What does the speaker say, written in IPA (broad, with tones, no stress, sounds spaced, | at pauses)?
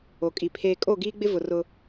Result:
o˨ kʼ i˨ pʰ eː˨ kʼ o˦˨ ɡ iː˦ ɡ͡b ɪ˦ v ʊ˨ r ʊ˦